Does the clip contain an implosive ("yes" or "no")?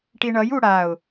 no